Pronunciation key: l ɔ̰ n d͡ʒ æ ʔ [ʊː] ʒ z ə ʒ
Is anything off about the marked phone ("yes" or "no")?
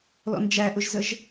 yes